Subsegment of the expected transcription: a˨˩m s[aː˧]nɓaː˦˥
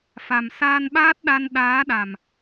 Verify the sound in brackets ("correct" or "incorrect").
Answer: correct